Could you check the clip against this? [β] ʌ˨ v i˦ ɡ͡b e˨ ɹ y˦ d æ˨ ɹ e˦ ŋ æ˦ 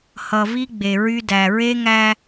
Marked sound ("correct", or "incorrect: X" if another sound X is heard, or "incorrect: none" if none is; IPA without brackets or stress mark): incorrect: h